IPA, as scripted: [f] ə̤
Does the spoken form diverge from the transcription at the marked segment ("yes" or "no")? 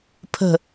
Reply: yes